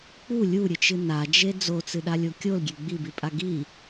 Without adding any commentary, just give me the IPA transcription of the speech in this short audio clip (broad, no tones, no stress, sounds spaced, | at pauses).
k͡p u lʲ u ɾʲ ɨ t͡ʃ ɨ n a d͡ʒ e d͡z o t͡s ɨ ɗ a lʲ o kʲ o l ɡʲ e ɡ͡b i b i pʼ a ɡ i